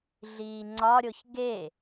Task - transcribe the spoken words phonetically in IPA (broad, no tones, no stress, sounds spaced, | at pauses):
ɮ iː ŋ͡ǀ ɒ ɾʲ o ç ɡ e